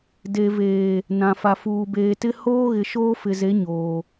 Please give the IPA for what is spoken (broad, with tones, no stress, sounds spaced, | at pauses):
d e˨ v eː˨ | n ã˨ f a˨ f uː˨ b eː˨ t ɪ˦ h oː˦ ɣ ɪ˨ ʃ oː˦ f ɪ˨ z e˨˦ ɲ oː˨